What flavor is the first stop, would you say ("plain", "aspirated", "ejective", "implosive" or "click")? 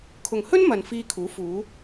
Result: aspirated